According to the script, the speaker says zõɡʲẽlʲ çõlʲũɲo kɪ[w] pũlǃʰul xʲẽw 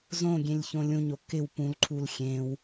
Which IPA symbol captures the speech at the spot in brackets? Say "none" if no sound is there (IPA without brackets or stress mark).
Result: w